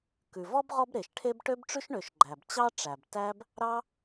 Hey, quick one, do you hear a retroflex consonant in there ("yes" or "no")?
yes